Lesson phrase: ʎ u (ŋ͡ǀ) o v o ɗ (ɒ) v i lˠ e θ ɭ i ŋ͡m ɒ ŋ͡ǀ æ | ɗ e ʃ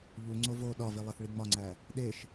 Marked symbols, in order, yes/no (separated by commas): yes, yes